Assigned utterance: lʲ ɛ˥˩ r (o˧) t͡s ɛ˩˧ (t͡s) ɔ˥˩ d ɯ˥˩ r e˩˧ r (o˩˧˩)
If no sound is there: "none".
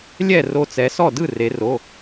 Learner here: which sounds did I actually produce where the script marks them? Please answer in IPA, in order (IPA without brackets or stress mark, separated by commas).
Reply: o˧, s, o˩˧˩